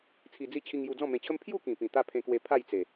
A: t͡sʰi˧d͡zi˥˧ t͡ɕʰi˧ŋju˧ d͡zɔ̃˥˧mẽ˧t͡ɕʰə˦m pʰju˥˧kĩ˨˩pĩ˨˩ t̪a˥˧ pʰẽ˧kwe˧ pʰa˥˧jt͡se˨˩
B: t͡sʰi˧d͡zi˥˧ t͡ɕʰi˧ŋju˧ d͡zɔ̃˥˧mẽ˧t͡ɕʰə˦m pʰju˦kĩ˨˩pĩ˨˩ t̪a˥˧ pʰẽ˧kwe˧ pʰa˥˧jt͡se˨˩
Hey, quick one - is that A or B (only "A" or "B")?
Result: A